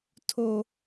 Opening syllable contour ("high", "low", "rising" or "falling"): high